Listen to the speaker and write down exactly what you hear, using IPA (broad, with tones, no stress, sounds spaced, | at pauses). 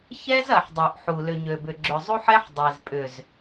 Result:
ç ɛ˦ z ɐ˨ ħ dˤ ø˨ ʔ ħ u˨ l ʏ˨ ɲ ø˨ b ʏ˨ ɡ͡ǁ ʏ˨ zˤ u˦ ħ ɛ˦ ħ dˤ e˨ z pʼ ʏ˨ z